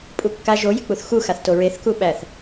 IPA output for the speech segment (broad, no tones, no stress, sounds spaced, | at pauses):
pʼ u kː a ʒ o j ɪ k͡p u θ x u x a θ t o ɹ e θ k u ɓ æ θ